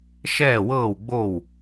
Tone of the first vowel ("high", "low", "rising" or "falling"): falling